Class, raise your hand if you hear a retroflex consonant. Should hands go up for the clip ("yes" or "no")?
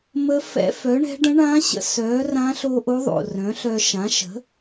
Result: yes